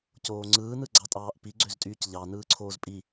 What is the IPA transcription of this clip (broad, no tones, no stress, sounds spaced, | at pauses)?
c oː ŋ͡ǀ ɯː n ɯ ɡ͡ǀ ɑ tʼ ɑː ʔ p i ɡ͡ǀ ø z tʼ yː c ʎ ɑ n ɯː ǀʰ oː z pʼ i